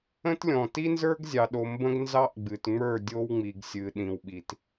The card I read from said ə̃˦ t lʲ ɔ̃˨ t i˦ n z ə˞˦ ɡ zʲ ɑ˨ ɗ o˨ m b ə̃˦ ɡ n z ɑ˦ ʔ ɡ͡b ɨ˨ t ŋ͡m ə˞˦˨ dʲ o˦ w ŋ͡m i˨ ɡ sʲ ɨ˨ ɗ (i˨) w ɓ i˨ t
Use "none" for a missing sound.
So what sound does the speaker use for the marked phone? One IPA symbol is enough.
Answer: ĩ˨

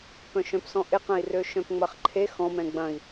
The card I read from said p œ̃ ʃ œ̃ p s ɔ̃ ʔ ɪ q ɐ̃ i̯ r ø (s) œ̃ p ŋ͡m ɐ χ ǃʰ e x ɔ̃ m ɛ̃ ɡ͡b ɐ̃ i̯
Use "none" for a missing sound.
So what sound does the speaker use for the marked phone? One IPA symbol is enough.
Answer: ʃ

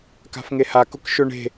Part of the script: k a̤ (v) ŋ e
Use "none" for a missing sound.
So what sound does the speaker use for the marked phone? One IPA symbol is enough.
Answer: f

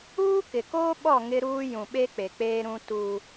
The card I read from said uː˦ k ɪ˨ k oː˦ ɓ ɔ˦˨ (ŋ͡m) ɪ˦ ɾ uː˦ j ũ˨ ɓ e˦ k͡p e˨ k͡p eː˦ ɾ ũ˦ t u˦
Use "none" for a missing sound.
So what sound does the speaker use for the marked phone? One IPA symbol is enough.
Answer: ŋ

